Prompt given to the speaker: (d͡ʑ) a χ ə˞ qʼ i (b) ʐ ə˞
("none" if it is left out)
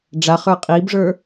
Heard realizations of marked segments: ɖ͡ʐ, b

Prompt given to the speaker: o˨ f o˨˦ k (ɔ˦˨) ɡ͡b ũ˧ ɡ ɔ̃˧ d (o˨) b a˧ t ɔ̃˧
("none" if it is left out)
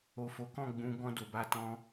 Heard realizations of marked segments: ɔ̃˦˨, o˨

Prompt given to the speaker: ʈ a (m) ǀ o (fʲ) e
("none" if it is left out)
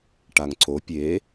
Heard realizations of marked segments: ŋ, pʲ

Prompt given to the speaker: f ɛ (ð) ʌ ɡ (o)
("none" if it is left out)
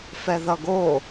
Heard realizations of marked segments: ð, o

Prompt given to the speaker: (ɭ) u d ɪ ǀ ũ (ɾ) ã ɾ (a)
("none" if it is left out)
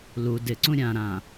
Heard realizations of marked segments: l, ɾʲ, ã

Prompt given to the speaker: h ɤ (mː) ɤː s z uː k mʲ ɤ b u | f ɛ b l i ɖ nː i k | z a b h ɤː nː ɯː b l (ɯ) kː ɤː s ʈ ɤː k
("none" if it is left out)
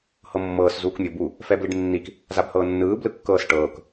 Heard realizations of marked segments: mː, ɯ

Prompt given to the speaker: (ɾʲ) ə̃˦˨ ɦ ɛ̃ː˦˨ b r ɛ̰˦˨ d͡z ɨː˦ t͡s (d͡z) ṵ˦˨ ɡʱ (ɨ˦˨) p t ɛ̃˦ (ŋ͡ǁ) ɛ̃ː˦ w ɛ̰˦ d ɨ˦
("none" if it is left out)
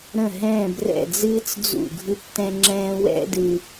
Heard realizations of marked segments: ɾ, d͡z, ɨ˦˨, ŋ͡ǁ

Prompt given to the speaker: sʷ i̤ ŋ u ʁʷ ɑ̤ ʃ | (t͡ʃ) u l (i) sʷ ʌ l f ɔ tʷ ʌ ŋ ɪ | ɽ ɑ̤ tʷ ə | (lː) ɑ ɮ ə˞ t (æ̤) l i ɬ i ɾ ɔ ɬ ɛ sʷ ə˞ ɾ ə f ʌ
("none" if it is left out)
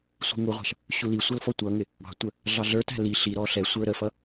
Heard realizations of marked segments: ɕ, i, ɮ, æ̤

